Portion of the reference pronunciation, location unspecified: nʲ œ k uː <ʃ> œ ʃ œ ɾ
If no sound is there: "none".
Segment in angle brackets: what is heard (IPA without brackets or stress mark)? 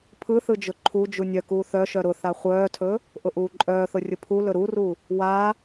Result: θ